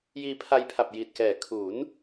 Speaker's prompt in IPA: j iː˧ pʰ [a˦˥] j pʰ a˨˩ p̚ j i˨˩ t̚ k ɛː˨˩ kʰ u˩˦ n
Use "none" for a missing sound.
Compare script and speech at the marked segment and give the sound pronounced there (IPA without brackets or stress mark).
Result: a˧